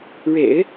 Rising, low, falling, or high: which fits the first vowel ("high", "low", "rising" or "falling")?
low